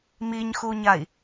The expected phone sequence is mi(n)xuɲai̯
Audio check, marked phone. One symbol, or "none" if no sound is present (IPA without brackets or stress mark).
ɲ